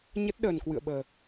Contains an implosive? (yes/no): yes